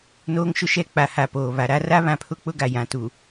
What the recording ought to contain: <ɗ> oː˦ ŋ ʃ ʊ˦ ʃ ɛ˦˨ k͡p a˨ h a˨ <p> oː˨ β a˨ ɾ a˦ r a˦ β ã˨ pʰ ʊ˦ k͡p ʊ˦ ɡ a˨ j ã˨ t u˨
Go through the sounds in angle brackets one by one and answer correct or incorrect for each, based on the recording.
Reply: incorrect, correct

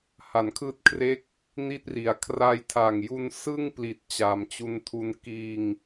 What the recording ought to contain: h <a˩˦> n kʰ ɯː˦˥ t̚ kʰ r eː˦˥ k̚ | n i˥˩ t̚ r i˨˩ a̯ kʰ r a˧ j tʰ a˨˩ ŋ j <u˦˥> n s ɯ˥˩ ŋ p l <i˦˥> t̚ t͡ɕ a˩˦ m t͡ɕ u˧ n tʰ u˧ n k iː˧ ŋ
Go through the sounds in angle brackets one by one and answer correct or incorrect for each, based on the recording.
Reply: correct, incorrect, incorrect

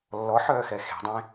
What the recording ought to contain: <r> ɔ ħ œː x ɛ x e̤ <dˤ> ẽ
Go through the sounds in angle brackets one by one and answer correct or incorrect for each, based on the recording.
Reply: incorrect, correct

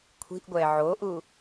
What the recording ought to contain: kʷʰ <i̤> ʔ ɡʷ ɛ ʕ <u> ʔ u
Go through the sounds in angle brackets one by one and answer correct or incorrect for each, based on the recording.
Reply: correct, incorrect

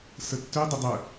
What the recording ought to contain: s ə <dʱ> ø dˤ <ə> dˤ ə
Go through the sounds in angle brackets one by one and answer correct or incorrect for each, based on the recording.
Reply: incorrect, correct

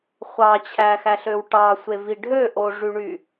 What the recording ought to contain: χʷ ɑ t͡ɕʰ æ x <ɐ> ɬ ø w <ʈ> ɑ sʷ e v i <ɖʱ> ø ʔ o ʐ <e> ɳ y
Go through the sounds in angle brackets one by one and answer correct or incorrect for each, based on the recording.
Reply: incorrect, correct, correct, incorrect

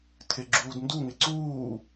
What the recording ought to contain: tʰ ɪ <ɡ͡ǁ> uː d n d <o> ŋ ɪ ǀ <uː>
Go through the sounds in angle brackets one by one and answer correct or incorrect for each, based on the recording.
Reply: correct, incorrect, correct

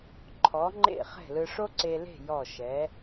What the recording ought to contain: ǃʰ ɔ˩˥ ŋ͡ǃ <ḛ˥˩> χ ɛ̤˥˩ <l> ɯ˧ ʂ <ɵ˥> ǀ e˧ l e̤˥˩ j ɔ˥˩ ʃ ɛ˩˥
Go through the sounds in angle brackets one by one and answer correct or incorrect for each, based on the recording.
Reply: correct, correct, incorrect

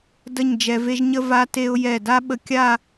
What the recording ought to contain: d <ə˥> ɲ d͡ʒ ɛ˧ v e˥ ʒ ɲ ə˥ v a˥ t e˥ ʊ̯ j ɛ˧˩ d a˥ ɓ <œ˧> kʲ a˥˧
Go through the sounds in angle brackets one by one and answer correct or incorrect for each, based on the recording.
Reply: incorrect, incorrect

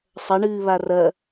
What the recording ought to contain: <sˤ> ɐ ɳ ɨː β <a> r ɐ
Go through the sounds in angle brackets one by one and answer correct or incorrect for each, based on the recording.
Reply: correct, correct

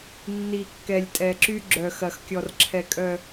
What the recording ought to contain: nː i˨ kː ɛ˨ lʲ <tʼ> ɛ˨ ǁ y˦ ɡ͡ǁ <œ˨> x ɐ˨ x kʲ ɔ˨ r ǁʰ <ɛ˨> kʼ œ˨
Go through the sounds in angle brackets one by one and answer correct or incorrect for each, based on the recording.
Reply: correct, correct, correct

